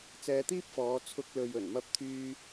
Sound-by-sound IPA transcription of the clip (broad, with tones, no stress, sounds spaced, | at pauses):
t͡s ɛː˧ t̪ iː˥ p̚ f ɔː˨˧ t͡sʰ ʊ˧ k̚ l ɵ˨ ɥ ɵ˨˩ n m ɐ˧ p̚ t̪ʰ yː˧